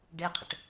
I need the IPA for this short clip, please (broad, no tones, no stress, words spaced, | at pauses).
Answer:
ɖeqʰə̰ʈ